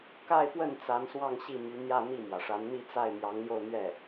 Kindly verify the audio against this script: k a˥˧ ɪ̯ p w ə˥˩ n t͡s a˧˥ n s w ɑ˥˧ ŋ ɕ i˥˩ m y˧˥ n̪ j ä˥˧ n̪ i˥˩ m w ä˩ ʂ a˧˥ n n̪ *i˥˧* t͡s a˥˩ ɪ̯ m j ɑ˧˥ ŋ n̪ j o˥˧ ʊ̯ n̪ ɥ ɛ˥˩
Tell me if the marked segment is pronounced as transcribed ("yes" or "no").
yes